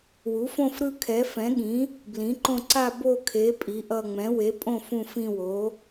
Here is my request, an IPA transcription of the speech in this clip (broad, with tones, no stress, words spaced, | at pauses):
wu˩˥fõ˦˨fɾɯ˦˨ kʰɛ˩˥fɛ̃˩˥ɠĩ˩˥ | blĩ˩˥ǃõ˦˨ ǀa˦˨bo˦˨kʰe˩˥ pʼi˩˥ʔʌ˦˨ ŋ͡mɛ̃˩˥we˩˥pʼõ˦˨ fũ˦˨fĩ˦˨wo˩˥